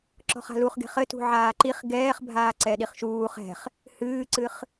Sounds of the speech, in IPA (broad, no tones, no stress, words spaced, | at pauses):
ǁɔ̤χa̤luχɡe̤χ ɘ tṳʕaːǃiχ ɡɛːχbʱaː ǀɛɗiχʃuːχ ɛ̤χ | hɨːǀɨχ